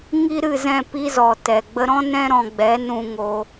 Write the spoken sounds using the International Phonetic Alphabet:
ŋ i˦ ɾ ɨ˦˨ z ɛ̃˦˨ p i˧ z ɔ˨ t ɛ˨ ɡ͡b ə˧ ɾ ɔ̃˦ n ɛ̃˦ ɾ ɔ̃˧ ɡ͡b ɛ˨˦ n ũ˧ ŋ o˧

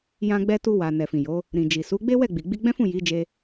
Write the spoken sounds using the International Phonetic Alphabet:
j ã˧ ɡ͡b ɛ˧ t u˧ w a˨ n ɛ˨ f ĩ˨ j o˨˦ | ɾ ĩ˨ d͡ʒ i˨ s u˨˦ ɡ͡b e˦ w ɛ˦˨ ɡ͡b i˨ ɡ͡b i˧ ɡ͡b ɛ̃˦ f ũ˦˨ j i˨˦ d͡ʒ e˧

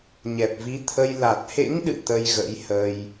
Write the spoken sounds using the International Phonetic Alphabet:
ɲ ɛ˨˩ p̚ v i˨˦ t̪ʰ ə˧ j l a˨˩ t̚ h ḛ˧˥ ŋ ɗ ɨ̰˧˨ t̪ ə˧ j ɣ ə̰˧˥ j h ə˧ j

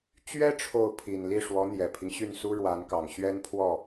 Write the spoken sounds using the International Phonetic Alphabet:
t͡ɕ ɥ ɛ˥ ʈ͡ʂʰ o˥˩ ʊ̯ pʰ i˨˩ n l i˥˩ ʂ w ɔ˧˥ n̪ j ɛ˨˩ pʰ i˦ ŋ ɕ y˥˩ n s u˥ ɻ w a˧˥ n k ɑ˨˩ ŋ ɕ ɥ ɛ˥ n pʰ w ɔ˥˩

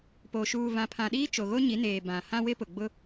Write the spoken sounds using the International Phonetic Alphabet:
p oː˨ ʃ uː˨ v ã˨ pʰ ã˨ ɗ iː˦ t͡ʃ o˨ ɣ o˦ ɲ i˨˦ n eː˨ b ã˨ h ã˦ w ɪ˦ p ʊ˨ ɡ͡b ʊ˦

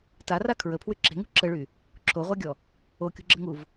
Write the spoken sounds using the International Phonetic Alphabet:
t a r a kʰ ɹ ə pʰ w y ǁ e̤ ŋ ṳ ǁ ə ɭ y | ǁʰ o ʁʷ a ɡʲ ɔ | o kʲ ṳ ɡ͡ǁ ə ŋ u v

